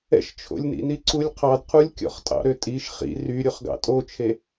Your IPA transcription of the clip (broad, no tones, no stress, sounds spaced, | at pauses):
ɛ̰ ʃ t͡ʃʰ o̰ lʲ n ḭ n i ǀ u lʲ qʰ ɑ d qʰ u lʲ kʲ ɔ̰ χ tʼ ɑ̰ ɾ ø tʼ i ʃ χ ḭ r y ɾʲ o χ ɡ ɑ̰ tʼ o t͡ʃʰ e